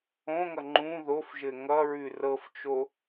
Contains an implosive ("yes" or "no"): no